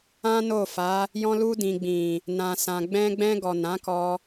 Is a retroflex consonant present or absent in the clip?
absent